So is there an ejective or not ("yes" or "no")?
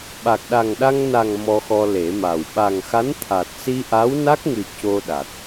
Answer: no